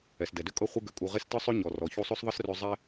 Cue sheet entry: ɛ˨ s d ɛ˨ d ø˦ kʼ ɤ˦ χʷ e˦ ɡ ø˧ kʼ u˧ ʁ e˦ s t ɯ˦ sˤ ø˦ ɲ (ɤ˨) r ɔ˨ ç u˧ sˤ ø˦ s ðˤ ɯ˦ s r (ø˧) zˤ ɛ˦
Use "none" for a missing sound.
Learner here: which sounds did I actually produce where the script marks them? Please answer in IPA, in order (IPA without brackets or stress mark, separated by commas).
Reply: ɔ˨, ø˧